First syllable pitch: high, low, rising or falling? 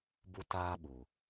high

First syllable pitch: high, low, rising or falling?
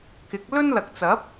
rising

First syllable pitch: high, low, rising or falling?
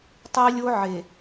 high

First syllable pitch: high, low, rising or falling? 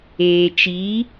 low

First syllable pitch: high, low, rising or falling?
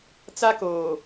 high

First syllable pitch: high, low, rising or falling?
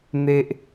high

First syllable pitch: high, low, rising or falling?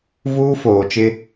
high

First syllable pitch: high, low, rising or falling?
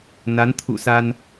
rising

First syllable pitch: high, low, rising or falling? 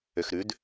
low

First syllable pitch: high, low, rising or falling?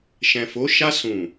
low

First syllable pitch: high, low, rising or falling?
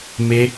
high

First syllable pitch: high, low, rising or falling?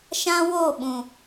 high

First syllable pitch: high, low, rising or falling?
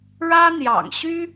high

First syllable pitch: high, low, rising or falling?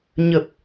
low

